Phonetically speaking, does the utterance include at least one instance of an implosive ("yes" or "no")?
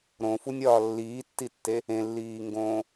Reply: no